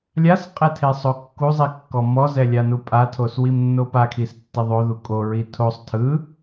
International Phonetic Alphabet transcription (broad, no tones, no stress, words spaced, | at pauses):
lʲasqʼɛtʰesˤo kːuzˤikːɔ mɔzɛlʲanu pʼatʰoswimnːo pakʰistːe ðˤoðu kʼoɹi tʰosˤ tʰɯ